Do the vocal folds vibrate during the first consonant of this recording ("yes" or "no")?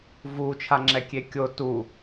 yes